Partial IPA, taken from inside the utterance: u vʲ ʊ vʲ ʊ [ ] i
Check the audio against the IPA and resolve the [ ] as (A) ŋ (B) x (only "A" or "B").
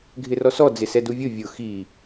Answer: B